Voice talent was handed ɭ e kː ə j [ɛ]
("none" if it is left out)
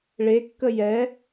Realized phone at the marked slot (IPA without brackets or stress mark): ɛ